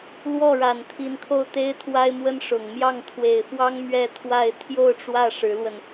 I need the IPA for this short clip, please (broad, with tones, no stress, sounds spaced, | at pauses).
l w ɔ˥˩ ɻ a˨˩ n t̪ʰ i˧˥ n kʰ o˥˩ ʊ̯ t̪ e˥ ɪ̯ t̪ʰ w a˥ ɪ̯ m w ə˥ n ʂ ʊ˨˩ ŋ m j ɑ˥˩ ŋ t̪ʰ w e˨˩ ɪ̯ f w ɑ˥ ŋ m ɥ ɛ˥˧ t̪ʰ w a˥˧ ɪ̯ t̪ʰ j o˥˧ ʊ̯ ʈ͡ʂ w ä˥˩ ʂ ɻ̩˧˥ l w ə˧ n